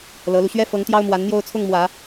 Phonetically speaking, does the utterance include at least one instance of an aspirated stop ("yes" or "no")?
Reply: yes